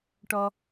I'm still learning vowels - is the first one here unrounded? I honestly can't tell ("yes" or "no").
no